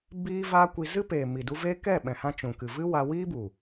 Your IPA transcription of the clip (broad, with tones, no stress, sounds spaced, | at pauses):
b iː˦ v aː˦ kʷ i˧ z ɨ˦ p eː˨ m i˨ d u˧ v eː˦ k ɛ˦˨ ɓ ɛ̃˨ h ã˧ t͡ʃ ũ˨ k ɨ˨ v ɨ˦ w a˧ w iː˦ b u˨